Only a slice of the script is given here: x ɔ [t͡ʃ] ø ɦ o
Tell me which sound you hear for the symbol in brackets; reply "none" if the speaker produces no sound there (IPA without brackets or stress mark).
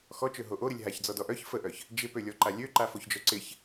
t͡ʃ